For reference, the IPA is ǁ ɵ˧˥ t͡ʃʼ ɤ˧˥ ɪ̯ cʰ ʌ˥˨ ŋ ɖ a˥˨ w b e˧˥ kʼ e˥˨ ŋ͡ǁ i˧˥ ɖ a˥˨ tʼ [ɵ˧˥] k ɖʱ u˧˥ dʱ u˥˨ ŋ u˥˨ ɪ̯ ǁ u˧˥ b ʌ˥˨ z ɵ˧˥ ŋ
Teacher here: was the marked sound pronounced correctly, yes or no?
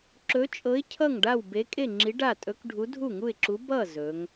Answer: yes